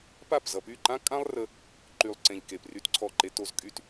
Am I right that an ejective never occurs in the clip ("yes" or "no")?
no